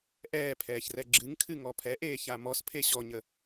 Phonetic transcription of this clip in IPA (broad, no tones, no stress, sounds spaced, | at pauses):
ʔ ɛː pʰ ɛː ç r ɛ ɡ͡ǁ ɨ ŋ kʰ ɨ ŋ ɔ pʰ ɛ ʔ eː ç a m ɔ s pʰ e ɕ ɔ ɲ ə